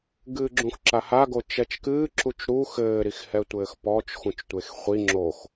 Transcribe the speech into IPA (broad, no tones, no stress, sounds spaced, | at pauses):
ɡ ɨː ɡ͡ǁ ũ x ǁ a h a ɡ o t͡ʃ ɛ t͡ʃ k ɨː ǁ u t͡ʃ ɾ u x ɘː ɾ i x h ɛ tʷ ɘː x p ɔ t͡ʃ x ũ t͡ʃ tʷ e x χʷ i ŋ͡ǁ o x